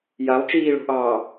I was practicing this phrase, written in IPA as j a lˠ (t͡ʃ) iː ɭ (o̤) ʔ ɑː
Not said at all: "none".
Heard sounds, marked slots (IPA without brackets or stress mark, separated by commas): t͡ʃ, o̤